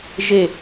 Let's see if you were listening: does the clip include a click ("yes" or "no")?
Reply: no